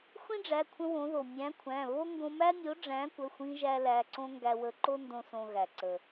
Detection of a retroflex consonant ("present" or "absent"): present